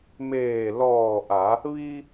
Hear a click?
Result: no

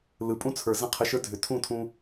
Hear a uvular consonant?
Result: yes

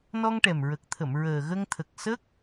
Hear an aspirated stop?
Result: yes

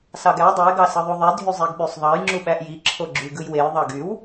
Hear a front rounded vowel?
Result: yes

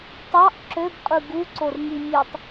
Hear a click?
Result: yes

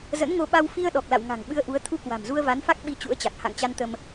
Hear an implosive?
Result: yes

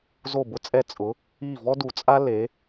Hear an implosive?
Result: no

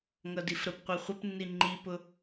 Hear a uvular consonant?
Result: yes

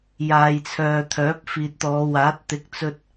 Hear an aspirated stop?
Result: yes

